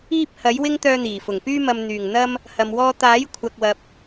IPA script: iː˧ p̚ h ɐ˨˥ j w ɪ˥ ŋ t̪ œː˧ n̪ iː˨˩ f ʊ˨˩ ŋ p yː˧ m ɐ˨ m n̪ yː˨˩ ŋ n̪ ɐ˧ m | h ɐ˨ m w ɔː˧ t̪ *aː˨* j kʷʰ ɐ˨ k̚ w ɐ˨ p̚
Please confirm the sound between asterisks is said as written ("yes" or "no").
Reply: no